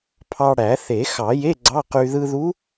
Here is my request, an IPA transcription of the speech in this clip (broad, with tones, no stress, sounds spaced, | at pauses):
pʰ ɑ˧ ɽ æ˨˩˦ θ e˨˩˦ x ɑ˨˩˦ j e˧˥˧ ɡ͡ǀ ɑ˧˥˧ q y˧ ð ɯ˧ ð u˧˥